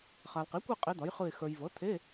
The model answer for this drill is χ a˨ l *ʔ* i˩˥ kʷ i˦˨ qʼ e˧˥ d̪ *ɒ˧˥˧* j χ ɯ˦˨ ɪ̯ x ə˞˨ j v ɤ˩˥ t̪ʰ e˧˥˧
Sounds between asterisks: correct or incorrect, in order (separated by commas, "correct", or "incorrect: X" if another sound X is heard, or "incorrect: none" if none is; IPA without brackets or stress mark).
incorrect: q, incorrect: ɒ˩˥